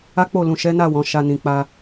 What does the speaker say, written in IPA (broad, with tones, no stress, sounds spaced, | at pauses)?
a˦ k͡p o˦˨ l ũ˨ ʃ ɛ˨˦ n a˦˨ w ɔ̃˨˦ ʃ a˧ n ĩ˨ k͡p a˧